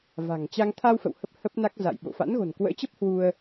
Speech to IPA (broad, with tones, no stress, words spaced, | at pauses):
va̤˨˩ŋt͡ɕa˧ŋ t̪ʰa˧wfə̰˧˨w hə˦˥p̚hə˦˥p̚na˦˥k̚ za̰˧˨jɓo̰˧˨ fa̰˧˥nɣo̤˨˩nkwə̰ː˧˥t͡ɕə˦˥p̚ hwu˧ə̯